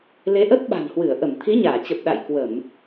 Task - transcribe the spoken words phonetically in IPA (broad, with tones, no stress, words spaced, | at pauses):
le˨˦ʔə˦˥t̚ɓa̤˨˩nhwɨ˧˩ə̯ ʔə˧˩mt̪ʰi˨˦ɲaː˧˩t͡ɕə˨˩p̚ ɗa̰˧˨jkwə˧˩˨m